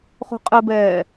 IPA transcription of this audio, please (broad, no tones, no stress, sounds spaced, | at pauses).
χ o̤ qʼ ɘ b ɛː